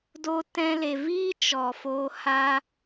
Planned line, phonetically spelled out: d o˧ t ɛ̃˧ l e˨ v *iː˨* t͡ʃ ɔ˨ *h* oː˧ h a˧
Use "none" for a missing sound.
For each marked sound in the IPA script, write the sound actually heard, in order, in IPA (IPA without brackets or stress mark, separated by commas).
iː˦, f